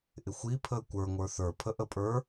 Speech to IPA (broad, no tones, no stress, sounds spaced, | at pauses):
ʔ ɪ xʷ i pʰ əː kʷ ə˞ ŋʷ ə˞ θ ə˞ pʰ ə ʔ ə pʼ ə˞